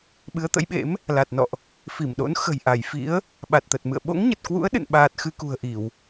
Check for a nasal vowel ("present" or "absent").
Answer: absent